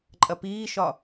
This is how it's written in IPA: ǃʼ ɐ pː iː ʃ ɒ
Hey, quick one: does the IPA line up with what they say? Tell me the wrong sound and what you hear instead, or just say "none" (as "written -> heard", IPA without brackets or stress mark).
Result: pː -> p